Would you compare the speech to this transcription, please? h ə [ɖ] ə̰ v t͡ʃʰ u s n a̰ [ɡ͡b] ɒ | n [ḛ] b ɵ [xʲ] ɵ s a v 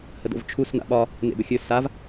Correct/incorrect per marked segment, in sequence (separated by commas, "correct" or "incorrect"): incorrect, incorrect, correct, correct